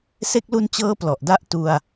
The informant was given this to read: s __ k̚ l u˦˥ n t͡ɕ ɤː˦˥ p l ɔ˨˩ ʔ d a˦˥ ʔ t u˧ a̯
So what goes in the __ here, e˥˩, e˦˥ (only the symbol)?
e˦˥